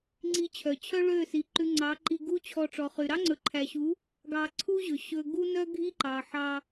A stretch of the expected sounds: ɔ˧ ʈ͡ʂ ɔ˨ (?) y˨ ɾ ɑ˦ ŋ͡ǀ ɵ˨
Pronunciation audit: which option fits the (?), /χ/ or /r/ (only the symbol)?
χ